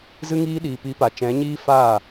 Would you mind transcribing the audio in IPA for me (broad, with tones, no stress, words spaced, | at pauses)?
zɨ˧ŋiː˧ɗiː˨ pi˨˦pa˨t͡ʃɛ̃˨˦ɲiː˦ faː˦˨